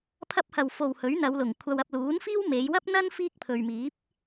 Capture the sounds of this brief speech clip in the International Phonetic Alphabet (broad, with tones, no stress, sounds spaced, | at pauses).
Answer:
pʰ ɐ˥ p̚ h ɐ˨˩ w f o˨˩ w h ɵ˨˥ ɥ n̪ ɐ˨˧ w l ʊ˨˩ ŋ kʷʰ ɐ˨ w ɐ˨ p̚ l uː˨˥ n f iː˥ w m e˨˧ j w ɐ˥ p̚ n̪ ɐ˥ n f iː˥ k̚ pʰ ɵ˨ ɥ m iː˨˥ p̚